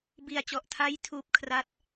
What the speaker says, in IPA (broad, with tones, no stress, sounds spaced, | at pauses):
b i˧ a̯ t͡ɕ ɔ˨˩ ʔ tʰ a˦˥ j tʰ uː˥˩ p̚ kʰ r a˥˩ t̚